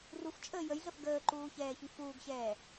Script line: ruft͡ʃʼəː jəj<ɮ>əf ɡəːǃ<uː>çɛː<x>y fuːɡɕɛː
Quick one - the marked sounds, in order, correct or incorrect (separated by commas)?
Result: correct, correct, incorrect